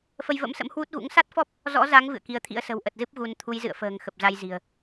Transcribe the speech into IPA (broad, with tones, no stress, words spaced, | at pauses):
fə˧jvə̰˧˥msə̰˧˥m hwu˦˥t̚ɣṵ˧˥ŋ sa˦˥t̚fɔ˦˥p̚ | zɔ̰˧˥za˨˦ŋ vɨ̰˧˨ə̯ki˨˦ə̯t̪ʰḭ˧˥ə̯ sə̤˨˩wʔə˨˩t̚zɨ˦˥p̚ ɣu˨˦n t̪ʰu˨˦jzɨ̰˧˨ə̯fə̤ː˨˩ŋ xə˨˩p̚za˧j zi̤˨˩ə̯